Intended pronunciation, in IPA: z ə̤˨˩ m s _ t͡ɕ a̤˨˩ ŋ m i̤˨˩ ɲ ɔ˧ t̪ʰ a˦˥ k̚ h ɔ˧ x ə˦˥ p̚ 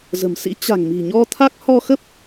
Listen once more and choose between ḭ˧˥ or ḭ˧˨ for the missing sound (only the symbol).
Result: ḭ˧˥